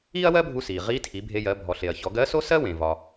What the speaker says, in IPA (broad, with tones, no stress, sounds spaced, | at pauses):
iː˥ ɐ̯ w ɜ˥ bʱ u˧ s iː˩ ʁ iː˧˥ tʰ i˩˧ bʱ e˧ j ɜ˩˧ bʱ ɔ˩ ɬ e˩ ɐ̯ ç ɔ˩˧ ɡ ɜ˧˥ s o˥ s ɜ˥ w ẽ˩ v ɒ˩